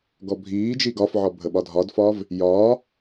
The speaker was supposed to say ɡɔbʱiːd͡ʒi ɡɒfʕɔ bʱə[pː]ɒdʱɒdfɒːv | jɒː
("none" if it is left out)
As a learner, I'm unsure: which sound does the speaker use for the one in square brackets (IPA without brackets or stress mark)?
ɓ